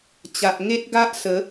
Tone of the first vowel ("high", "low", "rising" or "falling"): low